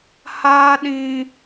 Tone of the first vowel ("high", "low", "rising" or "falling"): high